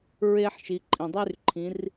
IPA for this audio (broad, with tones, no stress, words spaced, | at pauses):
ɹe˧ħ ʃi˩˧ǃʼĩ˩dˤy˥r ǃʰĩ˩˧r